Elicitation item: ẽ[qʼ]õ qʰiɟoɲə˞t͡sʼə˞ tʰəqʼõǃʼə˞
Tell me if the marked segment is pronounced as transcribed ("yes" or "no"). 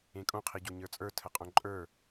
no